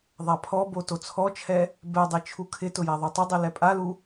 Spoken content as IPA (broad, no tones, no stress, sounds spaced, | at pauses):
ðˤ a pʰ ɔ b o t o t͡sʰ ɔ t͡ʃʰ ɛ | b ɛ dˤ i t͡ʃʰ u kʰ ɪ t ʊ j a ðˤ u tˤ ɪ dˤ i l ɛ pʼ a l u